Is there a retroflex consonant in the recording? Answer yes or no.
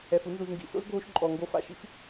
no